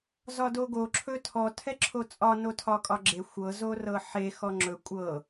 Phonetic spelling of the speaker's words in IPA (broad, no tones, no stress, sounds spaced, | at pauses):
z ɒ d o ɡ o ǁʰ ɵ tʰ ɔ tʰ ɛ ǁʰ o t͡sʼ ɒ n o tʰ ɒ kʼ ɒ ɡ͡ǁ e xʷ ɤ z o r ɤ ħ e x ɔ ŋ͡ǁ ɵ kʷʼ ɤ